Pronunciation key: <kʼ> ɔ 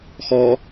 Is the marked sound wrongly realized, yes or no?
yes